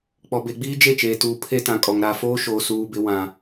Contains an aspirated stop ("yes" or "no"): yes